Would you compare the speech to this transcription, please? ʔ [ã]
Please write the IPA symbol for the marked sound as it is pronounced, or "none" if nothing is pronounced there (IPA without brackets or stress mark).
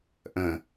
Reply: ə̃